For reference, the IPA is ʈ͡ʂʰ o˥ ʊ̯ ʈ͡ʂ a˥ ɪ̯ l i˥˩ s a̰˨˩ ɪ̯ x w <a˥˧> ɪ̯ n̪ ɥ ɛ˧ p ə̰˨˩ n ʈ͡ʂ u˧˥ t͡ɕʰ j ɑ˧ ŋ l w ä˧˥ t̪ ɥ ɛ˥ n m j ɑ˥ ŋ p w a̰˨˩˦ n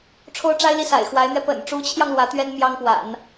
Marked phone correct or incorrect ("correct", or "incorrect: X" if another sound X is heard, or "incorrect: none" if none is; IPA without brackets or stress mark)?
incorrect: a˧˥